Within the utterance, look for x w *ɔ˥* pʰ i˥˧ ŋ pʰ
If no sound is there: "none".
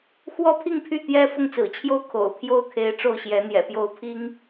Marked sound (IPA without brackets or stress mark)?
ɔ˥